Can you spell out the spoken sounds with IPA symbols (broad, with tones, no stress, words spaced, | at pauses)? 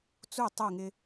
t͡su˦˨ tˤu˦˨ŋɪ˦